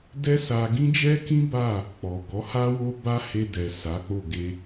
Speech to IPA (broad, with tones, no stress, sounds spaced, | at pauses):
d ɛ˦ s a˧ ɡ ĩ˦ d͡ʒ ɛ˦ k ĩ˦ b a˦˨ | k͡p ɔ˨ ɡ ɔ˨˦ h a˦ w o˦ b a˦ h e˧ d ɛ˨ s a˨˦ k͡p o˦˨ ɡ e˧